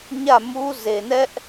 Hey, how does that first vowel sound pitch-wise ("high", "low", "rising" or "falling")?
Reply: falling